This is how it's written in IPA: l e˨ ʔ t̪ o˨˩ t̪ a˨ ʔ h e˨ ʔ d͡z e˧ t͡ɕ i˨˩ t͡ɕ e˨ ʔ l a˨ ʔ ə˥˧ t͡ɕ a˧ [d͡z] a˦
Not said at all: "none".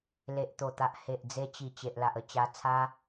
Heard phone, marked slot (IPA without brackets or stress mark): t͡sʰ